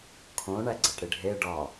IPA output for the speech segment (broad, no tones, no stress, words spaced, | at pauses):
kʰõ ɳæɡ͡ǀæʈɽiɖʱe ɖɒ